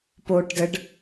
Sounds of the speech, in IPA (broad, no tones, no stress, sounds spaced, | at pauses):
p o ʈ d ə ɖ